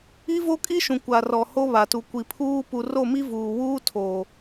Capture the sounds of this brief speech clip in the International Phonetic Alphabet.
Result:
i˦ v o˦ kʼ i˦ ʃ ũ˨ kʷ a˨ r ɔ˨ h o˦ β a˨ t u˨ kʷ i˨ pʰ uː˦ p u˨ r o˦˨ m i˦ v uː˨ w uː˦ tʰ oː˨

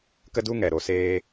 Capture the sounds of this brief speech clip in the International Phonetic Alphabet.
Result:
k ə˦ d u˦ ŋ ɛ˨ ɾ o˨ s eː˧

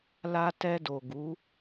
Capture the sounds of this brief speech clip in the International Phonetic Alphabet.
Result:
l a˧ t ɛ˧ d o˨ ɡ u˨˦

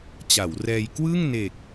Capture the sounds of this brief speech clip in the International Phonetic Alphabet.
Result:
t͡ɕ a˩˦ w r ɛː˧ j k w ɯ˥˩ ŋ n e˨˩ k̚

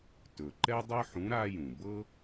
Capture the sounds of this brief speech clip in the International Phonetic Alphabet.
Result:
t ɵ˩ ǃ ɛ˥ dˤ ɤ˥ ħ ũ˨˥ ɾ a˥ j ũ˩ b ɤ˥

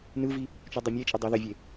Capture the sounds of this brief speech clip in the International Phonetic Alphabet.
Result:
n ɯ v i | t͡ʃ u dˤ ɯ mʲ e t͡ʃʼ ɛ dˤ ɯ ð ɛ vʲ e

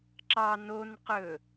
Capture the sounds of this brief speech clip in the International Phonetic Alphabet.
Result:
ǁ ɑ n o n q ɵ

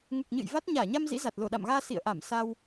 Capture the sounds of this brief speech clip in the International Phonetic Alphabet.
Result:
ŋ u˨˩ k̚ ɲ ɨ̰˧˨ j v a˦˥ t̚ ɲ aː˧˩ ɲ a˧ m z ḭ˧˥ z a˨˩ t̚ l o˧˩ ɗ a̰˧˨ m ɣ aː˧ s ḭ˧˨ ə̯ ʔ a˧˩ m s a˧ w

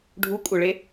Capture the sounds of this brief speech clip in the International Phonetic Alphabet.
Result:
ɖʱ u kʷʼ œ ɭ e

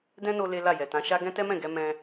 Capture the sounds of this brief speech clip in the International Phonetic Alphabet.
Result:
d ɛ̃˦ n o˧ l e˦ l a˦˨ j ɛ˨ t ã˨˦ ʃ a˦ ɡ ɛ̃˦ t ɛ˦ m ɛ̃˦˨ ɡ ɛ˧ m ɛ̃˧

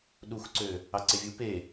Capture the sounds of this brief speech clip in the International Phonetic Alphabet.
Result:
ɗ u x ǀ ø | ɑ ǀ e vʲ u p e

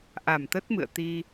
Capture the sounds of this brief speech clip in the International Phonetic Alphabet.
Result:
ʔ a˨˩ m t̪ ə˦˥ t̚ m ɨ̰˧˨ ə̯ t̪ i˧

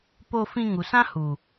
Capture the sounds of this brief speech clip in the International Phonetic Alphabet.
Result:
p o˧ f ĩ˧ ŋ u˨ s ã˦ h u˨

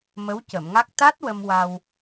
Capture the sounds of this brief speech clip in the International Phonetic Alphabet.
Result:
m ə˧˥ w c ə˨˩˨ m ŋ a˦˥ k̚ t̪ a˦˥ t̚ w ə˧ m w a˧ w

